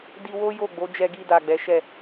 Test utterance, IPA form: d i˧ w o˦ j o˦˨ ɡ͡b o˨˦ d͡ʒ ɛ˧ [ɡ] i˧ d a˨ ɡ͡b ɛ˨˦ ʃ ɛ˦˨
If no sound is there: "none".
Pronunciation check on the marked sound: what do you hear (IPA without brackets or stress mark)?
ɡ